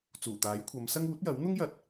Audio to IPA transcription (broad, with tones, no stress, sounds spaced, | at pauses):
t͡s uː˨˩ t̪ aː˨˥ j kʷʰ ɐ˨˧ m s ɐ˥ ŋ uː˨˥ t̚ j ɐ˨˥ w n̪ ʊ˥ ŋ j ɐ˨˥ t̚